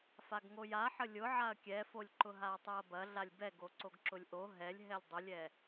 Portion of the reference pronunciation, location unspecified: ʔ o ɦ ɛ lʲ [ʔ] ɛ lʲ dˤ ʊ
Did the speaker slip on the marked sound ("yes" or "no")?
yes